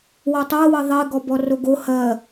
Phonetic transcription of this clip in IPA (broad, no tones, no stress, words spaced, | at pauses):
wɔtˤɜwɜ ðˤe ɡɔbɔroɡo hɜ